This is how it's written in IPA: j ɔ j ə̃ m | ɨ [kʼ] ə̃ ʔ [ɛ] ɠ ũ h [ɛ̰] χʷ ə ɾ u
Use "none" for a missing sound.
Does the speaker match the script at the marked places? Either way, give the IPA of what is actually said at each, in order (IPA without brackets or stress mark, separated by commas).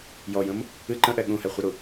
ǃ, ɛ, ɛ